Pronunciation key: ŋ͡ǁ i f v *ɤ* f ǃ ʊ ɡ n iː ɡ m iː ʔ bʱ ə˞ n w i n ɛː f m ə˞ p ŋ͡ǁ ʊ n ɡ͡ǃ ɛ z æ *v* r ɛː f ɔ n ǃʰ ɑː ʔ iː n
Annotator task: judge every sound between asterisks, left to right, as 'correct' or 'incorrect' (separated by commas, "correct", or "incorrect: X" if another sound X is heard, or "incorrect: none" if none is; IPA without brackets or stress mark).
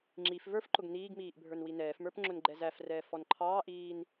incorrect: ə˞, incorrect: f